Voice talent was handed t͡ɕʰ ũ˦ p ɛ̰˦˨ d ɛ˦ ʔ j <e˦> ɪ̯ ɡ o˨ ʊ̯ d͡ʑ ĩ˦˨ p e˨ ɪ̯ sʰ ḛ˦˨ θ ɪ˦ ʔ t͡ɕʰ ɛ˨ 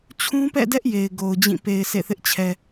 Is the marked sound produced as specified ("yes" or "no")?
no